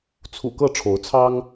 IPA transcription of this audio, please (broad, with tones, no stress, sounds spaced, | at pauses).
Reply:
t͡sʰ ṵ˨˩ k ɤ˥˨ ʈ͡ʂʰ o˨˦ ʊ̯ t͡sʰ ɑ˦ ŋ